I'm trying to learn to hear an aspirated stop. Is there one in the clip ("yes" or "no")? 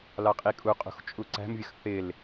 no